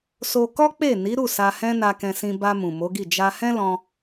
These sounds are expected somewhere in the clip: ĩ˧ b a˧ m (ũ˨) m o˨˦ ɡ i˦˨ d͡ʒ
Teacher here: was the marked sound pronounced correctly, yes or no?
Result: yes